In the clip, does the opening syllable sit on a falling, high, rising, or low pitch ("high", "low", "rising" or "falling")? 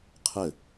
falling